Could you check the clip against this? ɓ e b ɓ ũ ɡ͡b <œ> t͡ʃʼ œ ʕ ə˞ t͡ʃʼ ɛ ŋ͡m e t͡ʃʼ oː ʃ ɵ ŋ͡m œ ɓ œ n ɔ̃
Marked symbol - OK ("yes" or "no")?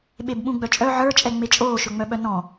yes